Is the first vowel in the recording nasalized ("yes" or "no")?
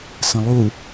yes